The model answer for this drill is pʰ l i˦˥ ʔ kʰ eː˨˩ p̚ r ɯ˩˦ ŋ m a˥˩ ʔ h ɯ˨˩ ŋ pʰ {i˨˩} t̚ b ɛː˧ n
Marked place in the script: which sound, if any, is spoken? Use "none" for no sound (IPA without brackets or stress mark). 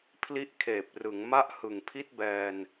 i˥˩